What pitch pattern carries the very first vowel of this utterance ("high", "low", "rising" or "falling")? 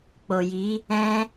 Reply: low